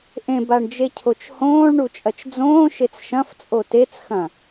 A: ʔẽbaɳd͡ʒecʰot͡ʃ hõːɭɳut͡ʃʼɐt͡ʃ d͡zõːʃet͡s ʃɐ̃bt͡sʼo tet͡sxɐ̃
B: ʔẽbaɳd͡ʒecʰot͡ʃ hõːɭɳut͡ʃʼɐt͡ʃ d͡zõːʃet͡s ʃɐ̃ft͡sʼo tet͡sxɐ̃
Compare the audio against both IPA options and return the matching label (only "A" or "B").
B